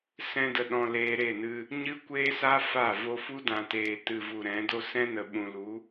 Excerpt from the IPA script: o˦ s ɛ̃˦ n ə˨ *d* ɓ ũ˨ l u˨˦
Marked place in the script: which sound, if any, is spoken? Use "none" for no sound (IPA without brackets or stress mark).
none